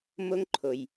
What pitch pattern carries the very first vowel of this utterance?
high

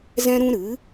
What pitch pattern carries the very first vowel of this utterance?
high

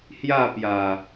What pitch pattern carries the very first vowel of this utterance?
falling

